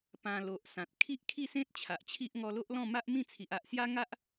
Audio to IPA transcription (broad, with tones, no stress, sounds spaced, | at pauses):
p ã˨˩ l o˨ ʔ s ã˨ t̚ kʰ i˦ ʔ kʰ i˥˧ s ẽ˦ t̚ t͡ɕʰ a˨ ʔ t͡ɕʰ i˦ ʔ ŋ ɔ˧ l o˦ ʔ l ɔ̃˥˧ m a˦ ʔ m ĩ˥˧ t͡sʰ i˨ ʔ a˨ ʔ s j a˦ ŋ a˦ ʔ